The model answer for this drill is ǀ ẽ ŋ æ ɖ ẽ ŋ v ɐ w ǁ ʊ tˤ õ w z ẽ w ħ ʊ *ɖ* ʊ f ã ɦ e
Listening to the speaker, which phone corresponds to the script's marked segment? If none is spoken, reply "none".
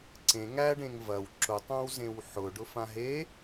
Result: ɖ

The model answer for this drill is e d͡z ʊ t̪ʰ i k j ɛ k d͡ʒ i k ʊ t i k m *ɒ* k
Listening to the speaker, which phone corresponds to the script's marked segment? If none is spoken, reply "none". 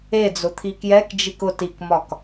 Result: ɒ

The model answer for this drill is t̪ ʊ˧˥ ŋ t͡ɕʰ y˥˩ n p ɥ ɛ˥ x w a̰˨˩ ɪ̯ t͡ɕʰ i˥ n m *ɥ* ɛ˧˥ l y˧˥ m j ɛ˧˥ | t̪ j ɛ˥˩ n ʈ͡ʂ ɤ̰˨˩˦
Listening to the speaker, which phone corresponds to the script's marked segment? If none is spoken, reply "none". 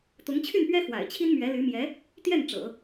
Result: ɥ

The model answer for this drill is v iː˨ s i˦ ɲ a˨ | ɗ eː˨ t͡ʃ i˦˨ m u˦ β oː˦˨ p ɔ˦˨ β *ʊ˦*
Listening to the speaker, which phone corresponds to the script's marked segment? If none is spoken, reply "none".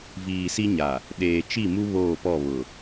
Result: ʊ˨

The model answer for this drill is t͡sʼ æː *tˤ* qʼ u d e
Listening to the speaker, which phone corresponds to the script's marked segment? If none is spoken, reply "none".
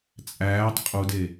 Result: tˤ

